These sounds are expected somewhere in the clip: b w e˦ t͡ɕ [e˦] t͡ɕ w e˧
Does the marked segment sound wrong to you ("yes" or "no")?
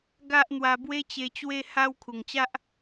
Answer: yes